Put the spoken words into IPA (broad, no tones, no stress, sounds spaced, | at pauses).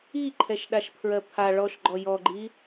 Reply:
i ǃʰ ɛ ʃ ɗ a ʃ pʰ ɹ ɜ pʰ a ɭ ɔ ʃ ɡ͡ǃ ɔ j ɔ ɡ͡ǃ i